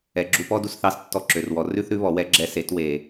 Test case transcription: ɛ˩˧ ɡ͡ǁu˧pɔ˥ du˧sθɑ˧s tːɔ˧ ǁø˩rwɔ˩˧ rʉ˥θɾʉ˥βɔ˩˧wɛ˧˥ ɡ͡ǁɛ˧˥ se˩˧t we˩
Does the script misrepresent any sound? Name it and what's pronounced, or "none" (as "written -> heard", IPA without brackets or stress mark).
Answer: none